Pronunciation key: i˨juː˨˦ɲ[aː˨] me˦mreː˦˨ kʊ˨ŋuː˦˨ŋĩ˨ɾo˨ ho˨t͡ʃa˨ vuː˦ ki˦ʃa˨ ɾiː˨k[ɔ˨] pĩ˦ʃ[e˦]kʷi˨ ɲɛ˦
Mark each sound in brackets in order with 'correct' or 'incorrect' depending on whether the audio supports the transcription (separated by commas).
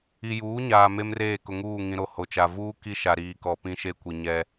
correct, correct, correct